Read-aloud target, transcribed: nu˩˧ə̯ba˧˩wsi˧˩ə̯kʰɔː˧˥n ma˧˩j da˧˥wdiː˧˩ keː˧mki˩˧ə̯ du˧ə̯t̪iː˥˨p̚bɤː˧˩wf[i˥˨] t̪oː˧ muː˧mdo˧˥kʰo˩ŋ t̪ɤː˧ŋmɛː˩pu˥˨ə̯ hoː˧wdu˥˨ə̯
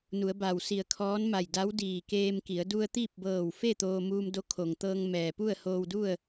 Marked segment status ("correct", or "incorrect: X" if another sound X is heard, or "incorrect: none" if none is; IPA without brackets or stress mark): incorrect: e˥˨